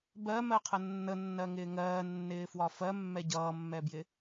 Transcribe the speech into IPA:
b ɜ m ɜ qʰ ə nː ə nː ɜ ŋ ɪː ŋ ɜː nː ɪː f w ɒ f ɜ mː ɛ ɟ ʌː mː ɛ b j ɪ

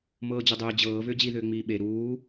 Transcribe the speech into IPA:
m ɤː d͡ʑ ʏ dˤ ʏː d͡ʑ ɤː v ʏː d͡ʑ i ð ʏː ŋ͡m iː ɓ e ɾ uː

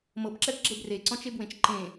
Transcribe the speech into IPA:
m ɤ b ǁ ɛ b ɡ͡ǁ e b r e ǀ ɔ̃ t͡ʃ e b w ẽ t͡ʃ ǃ ẽ

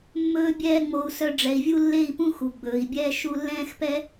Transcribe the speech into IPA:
mː ɵː˦ bʲ ɛː˦ ŋ͡m o˧ u̯ s œ˧ ɖ͡ʐ ɛ˨ i̯ vʲ u˦ lː e˦˨ i̯ p ũ˦ x u˨ ɡ͡b ɵː˨ i̯ bʲ ɛː˦ ʃ u˧ lː ɛ̃ː˦ x p ɛ˦

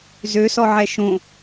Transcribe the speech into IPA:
z ø s ɔ ʕ ɛ ʃ õ

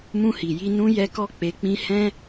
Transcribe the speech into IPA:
m ũ˧ h i˨ j i˧ n ũ˦ j ɛ˦ k ɔ˦ k͡p e˧ k͡p ĩ˦ h ɛ̃˦

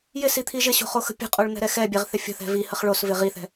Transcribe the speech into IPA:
j ɪ s i t̪ʰ i ʒ ɪ ɕ o̤ χ o x ə̤ pʲ ə̤ qʼ o ɭ n̪ ɛ̤ ɾ ɛ x ɛ bʲ ɛ ʁ θ ɪ fʲ ə̤ θ ɛ̤ v i h ə χ ɭ o s v ɪ ʁ i θ ɛ̤

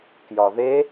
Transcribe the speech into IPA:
k j ɒ ð e

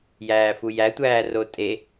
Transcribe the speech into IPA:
j æː f u j æ tʷ æː r o tʼ e

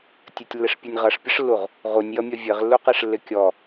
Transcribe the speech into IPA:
tʲ ɘ tʲ lː ɪ ʂ pʲ ʌ nʲ ʁ ʌ ʂ pʲ ə ʂ lː u ʁ | ʁ u nʲ j ʌ mʲ ʌ vʲ ɘ ʁ lː u q e ʂ lː ɪ kʲ ɔ

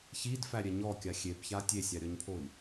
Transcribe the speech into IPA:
ç i d f æ ɾʲ ɛ ɲ ɔ kʲ a xʲ e b ç a tʲ e sʲ a ɾʲ ɔ ɲ pʰ o i̯

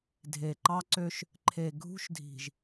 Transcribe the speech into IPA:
dʱ e˨ ǃ ɑ˦ ǀ ø˦ ʃ | ǃʰ e˨ ɡʱ ṳ˦ ʃ dʱ i̤˨ ʒ

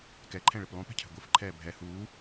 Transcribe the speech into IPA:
k ɛ ǃʰ ɛ̃ ɭ ɪ p lˠ ũ p ɛ̤ cʰ ɛ̤ ɡʷ ɨ f ǃʰ ɛː bʱ ɛ h uː

